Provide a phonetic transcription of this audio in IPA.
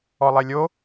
ɔ lˠ e lʲ o

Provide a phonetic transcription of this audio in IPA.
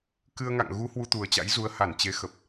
k ɨ˧ ə̯ ŋ a̰˧˨ ŋ ɣ u˨˦ h w u˧ t̪ u˨˩ ə̯ t͡ɕ a̰˧˥ j z u˨˦ ə̯ h a˧˩ n t͡ɕ e˨˦ x ə˨˩ p̚

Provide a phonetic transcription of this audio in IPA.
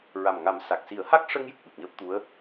ɹ a˨˩ m ŋ a˨˩˦ m s a˨˩ k̚ s i˨˩˦ ə̯ h a˦˥ k̚ ʂ ə˧ ŋ j ɨ˨˩ k̚ ɓ ɨ˨˩ p̚ ɲ əː˦˥ p̚ t̪ u˧˥ ə̯

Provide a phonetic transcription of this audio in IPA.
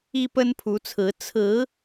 i˦ p ə˦ n pʰ u˨˦ t͡sʰ ɹ̩˨˦ t͡sʰ ɹ̩˨˦

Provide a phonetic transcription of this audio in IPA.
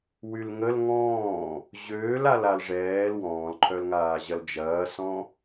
w y l ŋ ə l ŋ ɔ̃ː | ʑ øː l a l a l ʐ ɛː l w ɔ̃ː l ǃʰ œ l ŋ aː ʑ ɐ l d͡ʒ ɐː s ɔ̃

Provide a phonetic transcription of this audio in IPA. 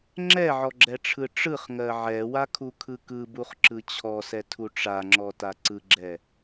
ŋ͡ǁ ɛ ʕ ɔ ɡ͡ǁ ɛ ʈ͡ʂʰ ɯ ʈ͡ʂ ɯ χ ŋ ɜ ʕ ɛ w a kʰ u kʰ ɯ k ɯ b u χ ǁ ɯ t͡ɕʰ ɔ s ɛ tʰ u ʈ͡ʂ a ŋ͡ǁ ɔ t a ǀ ɯ ɡ͡ǁ ɛ

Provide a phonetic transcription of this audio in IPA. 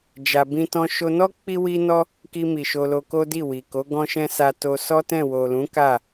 d͡ʒ a˧ b ĩ˦ t ɔ̃˦ ʃ o˧ n ɔ˦ k͡p i˦ w i˦ n ɔ˦ | k i˧ m i˨ ʃ o˧ l o˧ k o˦ d i˦˨ w i˨ k o˨˦ ɡ ɔ̃˦ ʃ ɛ̃˦ s a˧ t o˧ s ɔ˦ t ɛ̃˦˨ w o˨ l ũ˨˦ k a˦˨

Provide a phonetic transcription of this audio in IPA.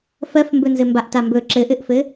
f ɜ f m b ɵ n z ɘ m b a ʔ t a m b ɵ ǁ ɘ ʔ ɘ ʔ f ɘ

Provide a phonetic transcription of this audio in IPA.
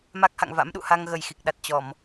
m a˦˥ k̚ h a̰˧˨ ŋ v a̰˧˥ m ɗ ṵ˧˨ h a˧ ŋ ɣ ə˨˩ j x i˨˩ k̚ ɗ a˨˩ t̚ t͡ɕ ɔ˧˩˨ m

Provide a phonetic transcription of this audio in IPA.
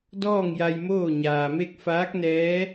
d ɔː˥˨ ŋ j a˧ j m oː˥˨ ɲ aː˩ m e˥˨ k̚ f aː˧˥ k̚ n ɛː˧˥

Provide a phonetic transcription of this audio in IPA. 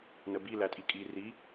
n ə b i l æ tʼ i kʼ i r i

